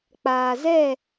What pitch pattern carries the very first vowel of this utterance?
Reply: low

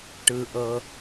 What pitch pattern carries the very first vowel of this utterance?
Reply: low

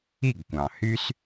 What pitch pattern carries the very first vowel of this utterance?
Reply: falling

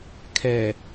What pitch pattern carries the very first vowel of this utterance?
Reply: low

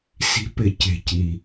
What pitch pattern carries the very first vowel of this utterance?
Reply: rising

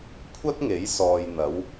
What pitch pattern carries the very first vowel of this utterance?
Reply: high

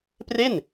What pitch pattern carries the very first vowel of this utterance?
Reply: falling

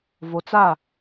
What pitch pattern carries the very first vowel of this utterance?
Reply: low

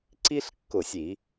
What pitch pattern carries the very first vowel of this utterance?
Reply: high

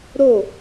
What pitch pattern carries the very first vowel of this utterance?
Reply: falling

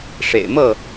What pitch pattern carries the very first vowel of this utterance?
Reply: low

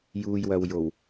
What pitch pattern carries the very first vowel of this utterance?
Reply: low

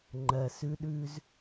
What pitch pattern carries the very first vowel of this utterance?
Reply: low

